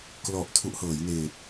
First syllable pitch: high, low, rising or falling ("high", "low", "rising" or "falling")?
low